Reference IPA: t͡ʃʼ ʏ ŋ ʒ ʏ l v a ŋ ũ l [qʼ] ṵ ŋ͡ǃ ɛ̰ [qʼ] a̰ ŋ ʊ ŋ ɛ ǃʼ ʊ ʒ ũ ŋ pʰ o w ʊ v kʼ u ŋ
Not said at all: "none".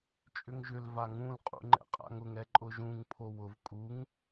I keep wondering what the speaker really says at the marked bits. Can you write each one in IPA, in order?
qʼ, qʼ

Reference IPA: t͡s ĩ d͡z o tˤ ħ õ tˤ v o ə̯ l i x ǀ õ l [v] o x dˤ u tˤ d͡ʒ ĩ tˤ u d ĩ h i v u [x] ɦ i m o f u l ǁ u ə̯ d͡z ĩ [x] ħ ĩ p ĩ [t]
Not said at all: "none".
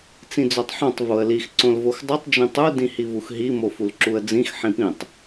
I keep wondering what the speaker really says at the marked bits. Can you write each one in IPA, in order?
v, x, x, tˤ

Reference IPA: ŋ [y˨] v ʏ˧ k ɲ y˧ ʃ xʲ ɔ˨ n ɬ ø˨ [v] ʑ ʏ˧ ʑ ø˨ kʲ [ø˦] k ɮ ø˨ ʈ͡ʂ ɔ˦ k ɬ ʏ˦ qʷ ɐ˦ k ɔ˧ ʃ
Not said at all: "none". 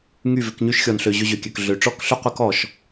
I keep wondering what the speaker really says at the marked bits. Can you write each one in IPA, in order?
y˦˨, none, ø˨

